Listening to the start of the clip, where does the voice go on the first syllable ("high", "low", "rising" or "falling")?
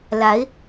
rising